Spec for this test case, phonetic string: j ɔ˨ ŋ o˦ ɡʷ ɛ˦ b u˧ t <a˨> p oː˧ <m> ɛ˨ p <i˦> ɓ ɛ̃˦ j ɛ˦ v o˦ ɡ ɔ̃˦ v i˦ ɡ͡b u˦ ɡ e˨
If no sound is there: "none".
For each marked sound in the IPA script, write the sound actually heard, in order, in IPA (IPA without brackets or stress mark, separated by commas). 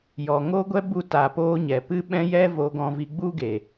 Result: a˨, ɲ, ɨ˦